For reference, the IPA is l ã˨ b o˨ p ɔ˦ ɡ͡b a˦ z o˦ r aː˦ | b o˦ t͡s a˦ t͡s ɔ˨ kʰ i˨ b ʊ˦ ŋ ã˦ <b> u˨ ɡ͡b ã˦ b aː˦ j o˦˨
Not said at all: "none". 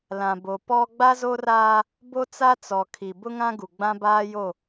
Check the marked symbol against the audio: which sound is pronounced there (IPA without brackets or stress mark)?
ɡ